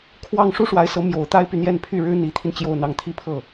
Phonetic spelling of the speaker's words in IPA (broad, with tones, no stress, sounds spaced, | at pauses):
kʰ w ɑ˥˧ ŋ ʂ u˥˩ ʂ w a˧˥ ɪ̯ s ɤ˧˥ m j o˨˩ ʊ̯ t̪ a˥ ɪ̯ p y˨ n̪ j ɛ˥˧ n pʰ y˥˩ ɻ ɻ̩˥ n̪ i˧˥ t̪ʰ i˧ n t͡ɕ j o˥˧ ʊ̯ n̪ ɑ˥˩ ŋ t̪ʰ i˥ pʰ ɤ˥˩